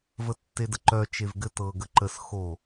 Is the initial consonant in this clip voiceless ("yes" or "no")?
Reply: no